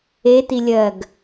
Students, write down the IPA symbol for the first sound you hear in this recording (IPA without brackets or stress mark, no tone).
e